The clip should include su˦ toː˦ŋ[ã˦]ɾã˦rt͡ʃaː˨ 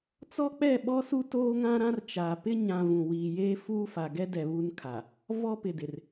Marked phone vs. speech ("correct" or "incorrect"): correct